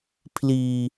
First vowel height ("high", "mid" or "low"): high